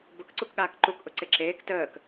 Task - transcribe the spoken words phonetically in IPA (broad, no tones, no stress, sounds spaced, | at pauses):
b ʊ k ǀ u k ɠ aː k ǃ u k ʔ ʊ ǀ e ǁ eː k t əː k